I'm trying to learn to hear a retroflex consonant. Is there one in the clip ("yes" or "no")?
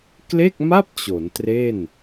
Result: no